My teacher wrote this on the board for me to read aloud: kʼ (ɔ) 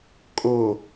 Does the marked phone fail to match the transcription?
yes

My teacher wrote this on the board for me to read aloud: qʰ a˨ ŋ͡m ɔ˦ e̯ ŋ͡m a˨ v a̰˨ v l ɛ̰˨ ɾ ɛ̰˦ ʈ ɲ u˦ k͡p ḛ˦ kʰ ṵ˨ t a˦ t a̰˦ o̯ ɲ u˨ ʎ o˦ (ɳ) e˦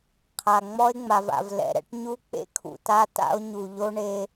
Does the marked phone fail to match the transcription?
no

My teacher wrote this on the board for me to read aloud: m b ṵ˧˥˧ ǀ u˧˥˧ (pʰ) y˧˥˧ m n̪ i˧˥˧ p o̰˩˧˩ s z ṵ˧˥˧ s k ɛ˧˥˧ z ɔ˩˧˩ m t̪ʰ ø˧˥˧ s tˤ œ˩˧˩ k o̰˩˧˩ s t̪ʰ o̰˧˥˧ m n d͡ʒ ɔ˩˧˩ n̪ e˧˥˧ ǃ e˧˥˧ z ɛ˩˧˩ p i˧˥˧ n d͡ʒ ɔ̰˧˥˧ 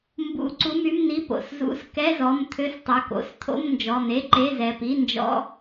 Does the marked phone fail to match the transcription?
yes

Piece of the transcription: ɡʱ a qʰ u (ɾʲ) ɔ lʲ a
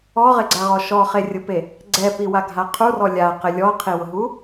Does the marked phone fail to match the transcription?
yes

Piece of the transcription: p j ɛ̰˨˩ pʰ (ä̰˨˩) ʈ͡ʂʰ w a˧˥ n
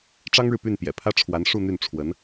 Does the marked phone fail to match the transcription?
yes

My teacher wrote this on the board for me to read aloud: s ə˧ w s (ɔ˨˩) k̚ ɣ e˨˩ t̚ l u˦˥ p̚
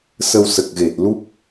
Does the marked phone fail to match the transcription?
yes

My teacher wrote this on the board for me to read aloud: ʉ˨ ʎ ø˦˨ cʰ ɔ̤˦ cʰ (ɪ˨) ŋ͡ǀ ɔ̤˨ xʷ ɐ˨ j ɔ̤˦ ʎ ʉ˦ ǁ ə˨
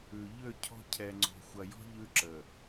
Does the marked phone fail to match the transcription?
yes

